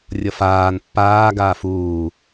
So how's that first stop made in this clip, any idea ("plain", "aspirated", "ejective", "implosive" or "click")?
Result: plain